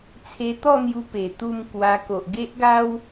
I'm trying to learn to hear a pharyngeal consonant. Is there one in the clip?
no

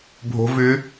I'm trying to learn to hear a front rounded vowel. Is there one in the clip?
yes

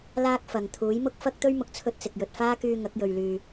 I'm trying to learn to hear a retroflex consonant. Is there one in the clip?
no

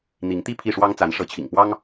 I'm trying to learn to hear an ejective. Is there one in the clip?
no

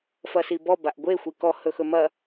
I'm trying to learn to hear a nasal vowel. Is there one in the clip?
no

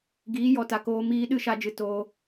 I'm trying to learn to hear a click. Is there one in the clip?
no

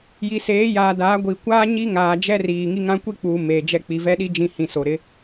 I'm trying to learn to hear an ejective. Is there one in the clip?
no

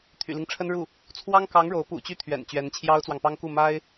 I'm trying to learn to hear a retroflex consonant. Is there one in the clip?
yes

